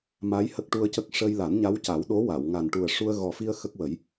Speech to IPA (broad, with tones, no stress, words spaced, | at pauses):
ma˧˥j hə˦˥k̚ʈu˧ə̯cə˦˥k̚ ʂə˧j la˨˩˦nɲa˧˥wca˨˩˦w ɗo˧˥wa˨˩˨wŋa˨˩n ʈu˨˩ə̯ ʂu˧ə̯ ɣɔ˨˩fi˧ə̯ xə˦˥k̚wə˨˩˦j